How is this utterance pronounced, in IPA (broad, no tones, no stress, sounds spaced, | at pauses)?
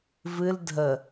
v ɨ l dʱ ə